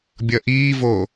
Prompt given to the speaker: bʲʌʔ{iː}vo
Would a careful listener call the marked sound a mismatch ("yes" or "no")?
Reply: no